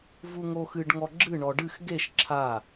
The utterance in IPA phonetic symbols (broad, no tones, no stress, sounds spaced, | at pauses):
v u ŋ oː x ɨ ɖ ŋ ɔ ɡ͡ǁ ɨ ɳ ɔ ɖ ɨ x ɡ e ʃ ǁʰ a